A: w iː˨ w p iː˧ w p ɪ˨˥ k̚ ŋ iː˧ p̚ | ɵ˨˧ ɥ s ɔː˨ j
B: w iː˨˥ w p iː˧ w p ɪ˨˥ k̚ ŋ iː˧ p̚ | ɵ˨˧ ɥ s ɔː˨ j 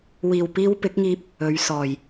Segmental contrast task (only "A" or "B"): A